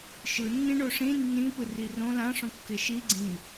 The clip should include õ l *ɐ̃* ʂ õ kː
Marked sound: incorrect: ã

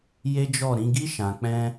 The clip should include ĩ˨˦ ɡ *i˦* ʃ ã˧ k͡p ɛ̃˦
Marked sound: correct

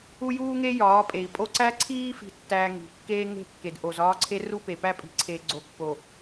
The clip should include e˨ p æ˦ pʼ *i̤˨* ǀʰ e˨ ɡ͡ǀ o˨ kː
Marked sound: correct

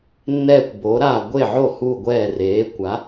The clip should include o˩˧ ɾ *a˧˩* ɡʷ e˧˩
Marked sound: correct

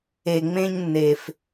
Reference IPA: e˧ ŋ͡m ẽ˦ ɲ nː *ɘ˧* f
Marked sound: incorrect: e˧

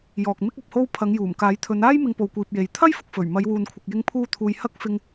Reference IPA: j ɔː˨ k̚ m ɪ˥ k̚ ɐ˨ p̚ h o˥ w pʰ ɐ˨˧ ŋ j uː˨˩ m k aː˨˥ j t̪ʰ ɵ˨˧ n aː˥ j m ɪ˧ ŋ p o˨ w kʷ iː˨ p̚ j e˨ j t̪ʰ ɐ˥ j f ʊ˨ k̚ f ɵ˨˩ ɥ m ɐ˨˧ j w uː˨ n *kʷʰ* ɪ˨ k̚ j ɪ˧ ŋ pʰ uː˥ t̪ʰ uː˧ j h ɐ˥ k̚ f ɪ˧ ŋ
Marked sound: correct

